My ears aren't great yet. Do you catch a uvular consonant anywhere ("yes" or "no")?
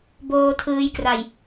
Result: no